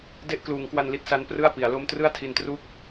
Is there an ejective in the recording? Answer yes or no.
no